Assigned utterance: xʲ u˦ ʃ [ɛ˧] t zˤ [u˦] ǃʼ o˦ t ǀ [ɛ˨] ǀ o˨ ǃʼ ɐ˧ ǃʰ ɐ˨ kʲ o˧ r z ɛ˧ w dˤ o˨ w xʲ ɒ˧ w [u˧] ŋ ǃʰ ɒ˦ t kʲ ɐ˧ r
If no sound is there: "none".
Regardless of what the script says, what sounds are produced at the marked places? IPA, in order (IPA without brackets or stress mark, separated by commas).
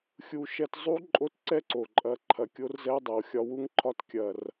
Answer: ɛ˧, u˦, ɛ˦, u˦